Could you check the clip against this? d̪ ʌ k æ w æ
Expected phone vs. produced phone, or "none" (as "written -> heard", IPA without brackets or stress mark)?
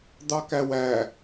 ʌ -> ɑ